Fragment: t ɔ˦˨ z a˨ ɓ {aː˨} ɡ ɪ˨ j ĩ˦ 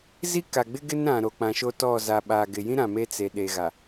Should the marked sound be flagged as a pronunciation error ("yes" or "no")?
no